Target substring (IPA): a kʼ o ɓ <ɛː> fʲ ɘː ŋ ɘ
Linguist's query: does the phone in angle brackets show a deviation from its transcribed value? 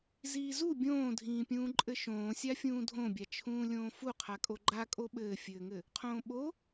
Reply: yes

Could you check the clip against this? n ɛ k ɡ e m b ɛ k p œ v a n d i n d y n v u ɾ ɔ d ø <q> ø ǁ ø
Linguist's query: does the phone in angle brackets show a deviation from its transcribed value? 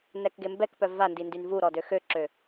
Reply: yes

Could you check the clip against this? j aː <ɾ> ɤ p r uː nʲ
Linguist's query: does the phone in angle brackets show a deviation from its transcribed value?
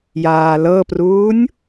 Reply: yes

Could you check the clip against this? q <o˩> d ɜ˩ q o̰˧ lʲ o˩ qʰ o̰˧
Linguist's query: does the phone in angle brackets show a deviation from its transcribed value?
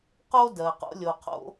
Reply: yes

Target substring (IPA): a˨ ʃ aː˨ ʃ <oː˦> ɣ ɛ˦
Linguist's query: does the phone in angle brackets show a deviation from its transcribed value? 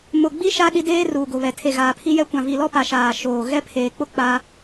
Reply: yes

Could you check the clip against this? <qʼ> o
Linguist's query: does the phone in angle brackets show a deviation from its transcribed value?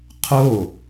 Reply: yes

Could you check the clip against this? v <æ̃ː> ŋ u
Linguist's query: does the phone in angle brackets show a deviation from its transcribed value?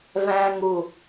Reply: no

